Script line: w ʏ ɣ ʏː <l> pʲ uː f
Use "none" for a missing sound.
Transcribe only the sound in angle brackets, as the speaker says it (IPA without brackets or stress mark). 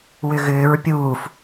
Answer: ɹ